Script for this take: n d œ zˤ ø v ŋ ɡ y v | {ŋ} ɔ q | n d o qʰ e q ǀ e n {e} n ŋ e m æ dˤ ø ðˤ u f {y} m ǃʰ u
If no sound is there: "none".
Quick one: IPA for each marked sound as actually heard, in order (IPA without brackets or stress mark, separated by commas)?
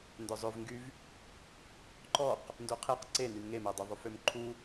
ǃ, y, ø